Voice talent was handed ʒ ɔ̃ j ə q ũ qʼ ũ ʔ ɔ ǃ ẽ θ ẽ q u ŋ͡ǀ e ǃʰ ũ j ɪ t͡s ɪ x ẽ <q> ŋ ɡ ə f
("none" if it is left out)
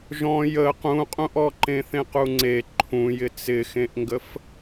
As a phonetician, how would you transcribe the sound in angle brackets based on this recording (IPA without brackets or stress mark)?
ʔ